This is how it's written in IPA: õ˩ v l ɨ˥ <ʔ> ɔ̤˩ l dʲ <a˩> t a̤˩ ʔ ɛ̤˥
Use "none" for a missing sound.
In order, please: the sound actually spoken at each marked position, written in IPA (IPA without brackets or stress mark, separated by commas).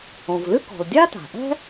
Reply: k, a˥